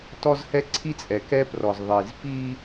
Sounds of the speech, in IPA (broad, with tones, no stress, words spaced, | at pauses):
tɔ˦zhɛ˦ǀʰi˦t͡sʼɛ˨ kɛ˦prɔ˨z ðˤi˨z pi˦